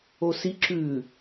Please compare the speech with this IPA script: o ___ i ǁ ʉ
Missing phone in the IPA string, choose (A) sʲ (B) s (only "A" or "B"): B